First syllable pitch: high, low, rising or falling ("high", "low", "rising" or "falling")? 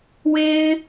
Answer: high